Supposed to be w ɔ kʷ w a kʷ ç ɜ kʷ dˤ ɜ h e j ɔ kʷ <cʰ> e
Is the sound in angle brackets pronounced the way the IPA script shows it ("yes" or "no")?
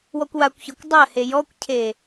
yes